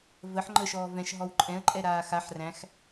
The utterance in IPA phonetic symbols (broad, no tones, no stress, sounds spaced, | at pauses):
v ə ħ ŋ͡ǃ ə ʃ ɔː v ɛ̃ ʃ ɦ ɔ w ǃʼ ɛ̃ ə̯ ǃʼ ɛ ɾ aː x a ħ r æ̃ x